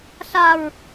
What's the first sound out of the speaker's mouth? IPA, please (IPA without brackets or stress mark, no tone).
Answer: ɬ